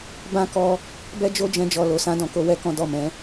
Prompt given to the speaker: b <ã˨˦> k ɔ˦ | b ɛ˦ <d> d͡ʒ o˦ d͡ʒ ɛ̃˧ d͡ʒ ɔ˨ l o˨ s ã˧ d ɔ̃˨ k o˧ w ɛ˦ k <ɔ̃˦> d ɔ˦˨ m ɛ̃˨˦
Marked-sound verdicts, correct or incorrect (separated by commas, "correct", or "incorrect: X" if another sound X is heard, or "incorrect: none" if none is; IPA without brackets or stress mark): incorrect: ã˦, incorrect: none, correct